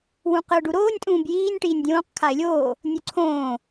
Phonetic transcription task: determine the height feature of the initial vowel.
high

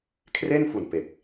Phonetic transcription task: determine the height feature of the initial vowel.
mid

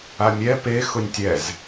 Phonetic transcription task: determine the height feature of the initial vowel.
low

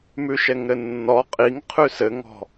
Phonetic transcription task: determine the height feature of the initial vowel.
high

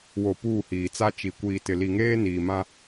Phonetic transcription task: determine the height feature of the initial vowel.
mid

